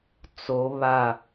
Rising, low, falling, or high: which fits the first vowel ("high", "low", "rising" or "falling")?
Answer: rising